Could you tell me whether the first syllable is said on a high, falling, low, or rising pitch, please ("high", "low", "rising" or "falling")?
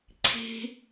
high